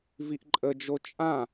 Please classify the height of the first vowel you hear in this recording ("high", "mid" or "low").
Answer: high